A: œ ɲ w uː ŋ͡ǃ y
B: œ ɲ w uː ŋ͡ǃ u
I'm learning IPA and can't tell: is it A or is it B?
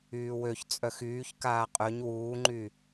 A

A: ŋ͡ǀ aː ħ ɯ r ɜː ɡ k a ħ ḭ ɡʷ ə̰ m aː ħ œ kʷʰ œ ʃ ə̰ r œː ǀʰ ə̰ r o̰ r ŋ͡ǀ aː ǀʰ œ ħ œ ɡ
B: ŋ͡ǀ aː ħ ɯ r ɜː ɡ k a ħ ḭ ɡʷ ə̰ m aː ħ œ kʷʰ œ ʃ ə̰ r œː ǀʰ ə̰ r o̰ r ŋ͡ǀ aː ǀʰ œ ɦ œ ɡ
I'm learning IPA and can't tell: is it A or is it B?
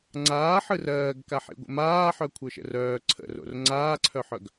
A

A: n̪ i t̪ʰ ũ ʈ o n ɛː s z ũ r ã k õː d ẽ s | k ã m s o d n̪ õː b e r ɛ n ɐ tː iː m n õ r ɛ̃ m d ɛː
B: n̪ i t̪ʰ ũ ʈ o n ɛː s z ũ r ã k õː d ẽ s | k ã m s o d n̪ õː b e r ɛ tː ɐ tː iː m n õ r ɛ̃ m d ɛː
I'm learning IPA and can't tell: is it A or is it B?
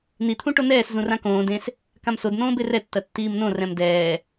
B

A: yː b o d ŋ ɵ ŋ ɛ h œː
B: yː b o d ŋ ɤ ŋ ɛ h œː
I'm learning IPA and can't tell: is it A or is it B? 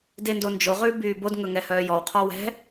A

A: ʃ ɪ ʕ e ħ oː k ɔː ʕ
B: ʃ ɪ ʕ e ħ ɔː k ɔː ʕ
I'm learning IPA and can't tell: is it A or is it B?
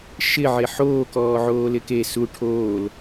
A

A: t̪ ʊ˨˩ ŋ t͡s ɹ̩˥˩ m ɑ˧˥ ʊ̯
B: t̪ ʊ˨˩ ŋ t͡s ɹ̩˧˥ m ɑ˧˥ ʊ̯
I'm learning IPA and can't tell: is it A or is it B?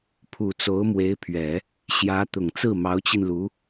A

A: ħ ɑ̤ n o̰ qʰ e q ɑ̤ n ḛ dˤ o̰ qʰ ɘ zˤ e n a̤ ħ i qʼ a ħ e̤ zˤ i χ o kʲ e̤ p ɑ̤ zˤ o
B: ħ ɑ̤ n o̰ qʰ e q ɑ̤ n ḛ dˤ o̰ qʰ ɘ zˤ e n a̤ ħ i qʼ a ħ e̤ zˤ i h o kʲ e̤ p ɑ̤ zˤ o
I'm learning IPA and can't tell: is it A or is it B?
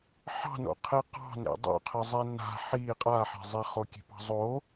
A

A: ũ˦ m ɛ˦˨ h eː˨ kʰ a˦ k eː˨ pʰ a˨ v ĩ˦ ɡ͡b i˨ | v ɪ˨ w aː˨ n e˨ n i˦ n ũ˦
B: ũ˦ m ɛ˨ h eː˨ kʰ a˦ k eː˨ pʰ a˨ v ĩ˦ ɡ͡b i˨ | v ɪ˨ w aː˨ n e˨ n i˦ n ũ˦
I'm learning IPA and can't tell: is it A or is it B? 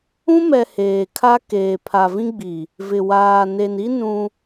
B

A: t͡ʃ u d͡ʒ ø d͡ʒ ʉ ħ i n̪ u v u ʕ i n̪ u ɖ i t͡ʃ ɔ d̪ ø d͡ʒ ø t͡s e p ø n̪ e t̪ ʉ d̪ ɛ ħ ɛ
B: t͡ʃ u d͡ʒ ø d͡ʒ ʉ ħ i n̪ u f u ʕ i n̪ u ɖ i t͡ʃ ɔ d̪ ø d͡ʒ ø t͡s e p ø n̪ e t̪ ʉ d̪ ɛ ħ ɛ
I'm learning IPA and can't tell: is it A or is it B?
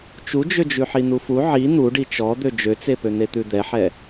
B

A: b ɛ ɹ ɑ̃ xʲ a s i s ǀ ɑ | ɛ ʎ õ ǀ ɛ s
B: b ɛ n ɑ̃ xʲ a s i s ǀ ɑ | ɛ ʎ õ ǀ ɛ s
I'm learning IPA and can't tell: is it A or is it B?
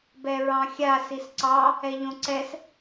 A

